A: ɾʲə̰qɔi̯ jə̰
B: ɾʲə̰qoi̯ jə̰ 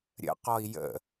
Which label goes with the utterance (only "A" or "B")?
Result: A